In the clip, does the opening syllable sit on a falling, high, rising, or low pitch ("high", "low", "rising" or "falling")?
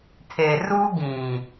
low